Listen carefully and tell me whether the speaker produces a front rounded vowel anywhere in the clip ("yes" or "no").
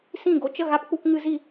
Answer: no